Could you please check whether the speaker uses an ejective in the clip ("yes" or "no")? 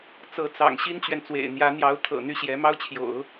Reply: no